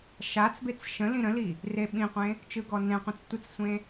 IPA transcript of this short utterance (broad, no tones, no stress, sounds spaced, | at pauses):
ʃ a t͡s b e t͡s ʃ ə̃ l ĩ ɾ ə̃ l i | r e ɓ ĩ qʷ ẽ | t͡ʃ ɯ ɡ ɔ n ẽ qʷ ẽ t͡s tʷ ɯ t͡s sʷ ẽ